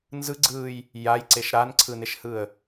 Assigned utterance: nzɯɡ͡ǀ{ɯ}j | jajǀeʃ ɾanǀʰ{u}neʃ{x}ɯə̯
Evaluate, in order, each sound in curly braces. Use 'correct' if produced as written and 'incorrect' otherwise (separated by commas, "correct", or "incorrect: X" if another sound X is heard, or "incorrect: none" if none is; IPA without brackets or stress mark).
incorrect: ɯː, incorrect: ɯ, incorrect: h